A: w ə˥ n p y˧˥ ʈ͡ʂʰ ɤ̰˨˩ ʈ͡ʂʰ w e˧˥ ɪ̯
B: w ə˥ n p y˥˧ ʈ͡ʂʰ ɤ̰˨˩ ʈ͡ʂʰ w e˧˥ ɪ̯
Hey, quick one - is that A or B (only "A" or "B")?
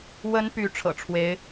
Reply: A